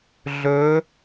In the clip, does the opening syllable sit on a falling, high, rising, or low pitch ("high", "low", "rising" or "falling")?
rising